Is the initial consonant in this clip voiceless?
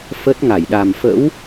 yes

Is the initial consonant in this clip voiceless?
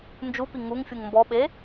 no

